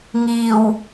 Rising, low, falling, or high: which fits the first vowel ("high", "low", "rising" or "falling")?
low